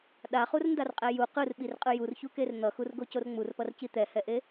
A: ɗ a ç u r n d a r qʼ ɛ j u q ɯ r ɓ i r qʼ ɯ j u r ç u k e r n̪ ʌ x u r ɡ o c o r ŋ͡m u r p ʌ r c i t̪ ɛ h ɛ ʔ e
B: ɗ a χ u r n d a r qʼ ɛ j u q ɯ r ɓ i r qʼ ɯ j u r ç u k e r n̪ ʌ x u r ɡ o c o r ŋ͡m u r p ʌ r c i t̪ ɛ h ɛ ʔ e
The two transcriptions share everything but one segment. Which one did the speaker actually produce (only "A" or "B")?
B